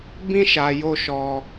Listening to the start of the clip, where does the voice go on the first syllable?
high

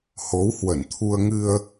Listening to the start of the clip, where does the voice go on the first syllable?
rising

